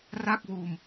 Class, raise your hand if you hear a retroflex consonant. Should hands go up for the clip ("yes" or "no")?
no